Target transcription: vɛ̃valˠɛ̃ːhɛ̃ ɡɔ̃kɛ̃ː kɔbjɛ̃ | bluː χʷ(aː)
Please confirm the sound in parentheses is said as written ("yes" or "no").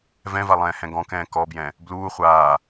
yes